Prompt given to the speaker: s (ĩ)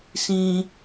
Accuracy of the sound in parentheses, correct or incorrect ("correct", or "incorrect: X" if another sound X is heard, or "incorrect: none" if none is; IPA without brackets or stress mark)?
correct